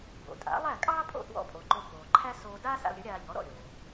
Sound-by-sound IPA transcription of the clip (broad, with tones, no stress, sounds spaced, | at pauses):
b o̰˩ tʼ a̰˩˥ lˠ æ˥˩ kʼ ɑː˥ pʼ o̰˥˩ t w ɔ̰˧ pʼ o˩ ǃ o˧ k oː˩ ǃʰ æ˥ s oː˧ d aː˥ s a̰˧ l ɾʲ ə˩˥ ɾʲ aː˧ ʎ ɔ˩˥ ɾ ɔ̰˥˩ ɾʲ oː˩